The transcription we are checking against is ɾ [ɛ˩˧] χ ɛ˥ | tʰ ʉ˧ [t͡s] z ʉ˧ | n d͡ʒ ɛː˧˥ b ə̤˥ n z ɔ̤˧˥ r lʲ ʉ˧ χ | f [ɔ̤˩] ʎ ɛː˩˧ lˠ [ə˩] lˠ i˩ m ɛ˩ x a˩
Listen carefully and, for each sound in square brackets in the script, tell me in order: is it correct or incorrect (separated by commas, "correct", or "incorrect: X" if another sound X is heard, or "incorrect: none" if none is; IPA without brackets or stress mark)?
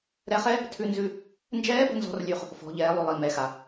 incorrect: ɛ˧˥, incorrect: n, incorrect: ɔ̤˩˧, incorrect: ʉ˩